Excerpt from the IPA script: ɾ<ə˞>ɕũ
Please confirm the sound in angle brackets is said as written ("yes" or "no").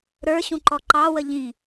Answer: yes